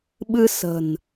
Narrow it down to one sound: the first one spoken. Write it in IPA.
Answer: ɓ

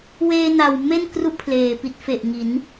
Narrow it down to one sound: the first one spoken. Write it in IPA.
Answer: w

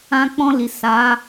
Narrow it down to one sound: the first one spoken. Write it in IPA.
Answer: ã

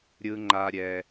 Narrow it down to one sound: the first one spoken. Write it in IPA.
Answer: ɾʲ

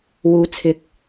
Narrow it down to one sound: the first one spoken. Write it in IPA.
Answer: w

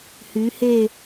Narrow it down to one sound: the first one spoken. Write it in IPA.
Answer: h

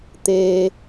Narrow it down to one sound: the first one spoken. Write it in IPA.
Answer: t̪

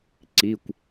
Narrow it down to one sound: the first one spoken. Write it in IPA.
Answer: ǀ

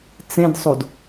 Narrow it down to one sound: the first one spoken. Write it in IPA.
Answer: t͡s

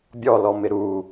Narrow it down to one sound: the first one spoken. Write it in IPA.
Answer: bʲ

